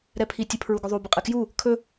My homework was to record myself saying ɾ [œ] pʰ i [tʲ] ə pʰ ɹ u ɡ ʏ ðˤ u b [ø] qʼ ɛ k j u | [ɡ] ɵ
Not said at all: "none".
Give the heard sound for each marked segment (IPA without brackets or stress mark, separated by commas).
ɛ, tʲ, ə, kʰ